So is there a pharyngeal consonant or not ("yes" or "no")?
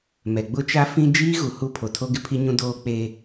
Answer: no